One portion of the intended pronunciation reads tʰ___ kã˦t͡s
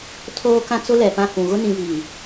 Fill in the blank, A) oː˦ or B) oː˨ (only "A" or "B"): A